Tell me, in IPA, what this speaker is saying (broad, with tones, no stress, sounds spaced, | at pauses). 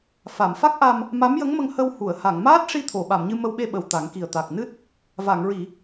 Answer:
f a˨˩˨ m f a˦˥ k̚ ʔ a˧ m | m a˧˥ m j ə˧˥ ŋ m ə˧ ŋ h ə˧ w h u˨˩˨ ə̯ h a˨˩˨ ŋ m aː˦˥ t̚ ʂ i˧ t̪ʰ o˨˩˨ ɓ a˨˩˨ m ɲ ɨ˧ m ə˧ w ɓ e˧ ɓ ə˨˩ w t̪ a˨˩˦ ŋ k i˨˩ ə̯ t̪ a˨˩ k̚ n ɨ˦˥ t̚ | v a˨˩˨ ŋ ɹ i˨˩˨